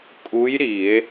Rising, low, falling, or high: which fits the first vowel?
rising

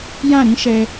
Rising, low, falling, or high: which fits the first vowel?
falling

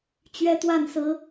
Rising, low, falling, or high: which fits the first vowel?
high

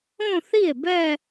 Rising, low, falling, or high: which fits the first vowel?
falling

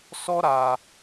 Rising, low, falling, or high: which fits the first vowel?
high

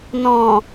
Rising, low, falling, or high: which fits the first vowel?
low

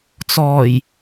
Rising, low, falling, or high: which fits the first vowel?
low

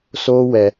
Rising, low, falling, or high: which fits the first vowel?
high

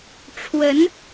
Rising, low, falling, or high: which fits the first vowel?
rising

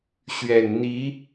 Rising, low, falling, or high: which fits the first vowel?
low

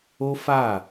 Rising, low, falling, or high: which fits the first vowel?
high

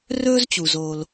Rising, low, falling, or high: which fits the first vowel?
high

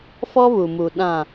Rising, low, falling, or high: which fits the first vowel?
high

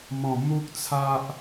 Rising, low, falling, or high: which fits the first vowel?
low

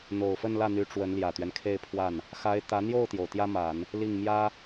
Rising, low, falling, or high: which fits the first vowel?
low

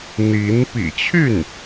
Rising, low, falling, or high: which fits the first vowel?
rising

